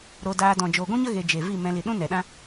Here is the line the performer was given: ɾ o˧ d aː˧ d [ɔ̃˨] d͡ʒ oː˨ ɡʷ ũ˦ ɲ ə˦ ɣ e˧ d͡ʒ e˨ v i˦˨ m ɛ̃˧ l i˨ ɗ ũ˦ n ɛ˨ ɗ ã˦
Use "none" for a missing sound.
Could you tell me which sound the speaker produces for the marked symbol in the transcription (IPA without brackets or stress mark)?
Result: ɔ̃˨